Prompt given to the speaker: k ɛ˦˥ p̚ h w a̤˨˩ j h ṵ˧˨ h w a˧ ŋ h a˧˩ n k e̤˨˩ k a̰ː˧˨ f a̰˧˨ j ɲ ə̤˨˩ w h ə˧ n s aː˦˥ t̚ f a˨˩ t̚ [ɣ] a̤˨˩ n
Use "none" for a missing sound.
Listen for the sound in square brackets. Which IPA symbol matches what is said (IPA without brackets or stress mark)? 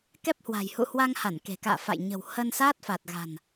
ɣ